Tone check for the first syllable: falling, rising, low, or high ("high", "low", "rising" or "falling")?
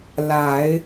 low